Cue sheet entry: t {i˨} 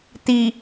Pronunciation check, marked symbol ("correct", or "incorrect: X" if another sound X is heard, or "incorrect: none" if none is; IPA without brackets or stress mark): correct